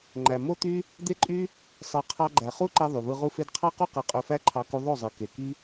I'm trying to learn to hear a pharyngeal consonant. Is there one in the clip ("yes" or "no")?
no